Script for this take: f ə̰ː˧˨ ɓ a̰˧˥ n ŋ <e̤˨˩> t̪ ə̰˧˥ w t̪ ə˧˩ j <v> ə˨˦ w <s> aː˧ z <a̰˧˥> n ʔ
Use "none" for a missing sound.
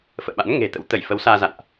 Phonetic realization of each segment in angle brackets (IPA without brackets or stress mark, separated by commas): e̤˨˩, f, s, a̰˧˨